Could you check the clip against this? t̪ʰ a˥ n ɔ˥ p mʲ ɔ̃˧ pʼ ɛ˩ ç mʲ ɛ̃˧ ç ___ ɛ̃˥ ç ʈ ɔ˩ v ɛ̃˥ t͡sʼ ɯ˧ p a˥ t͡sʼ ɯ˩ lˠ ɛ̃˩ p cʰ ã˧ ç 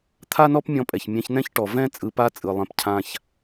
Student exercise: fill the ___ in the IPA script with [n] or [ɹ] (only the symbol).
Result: n